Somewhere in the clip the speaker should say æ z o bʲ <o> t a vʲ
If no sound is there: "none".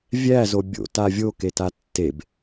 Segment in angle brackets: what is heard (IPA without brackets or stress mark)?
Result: o̰